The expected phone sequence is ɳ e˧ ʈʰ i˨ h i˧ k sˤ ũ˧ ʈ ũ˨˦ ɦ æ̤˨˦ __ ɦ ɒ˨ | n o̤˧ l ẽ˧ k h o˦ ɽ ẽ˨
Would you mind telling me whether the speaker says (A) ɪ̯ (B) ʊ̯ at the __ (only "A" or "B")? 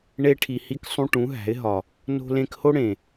A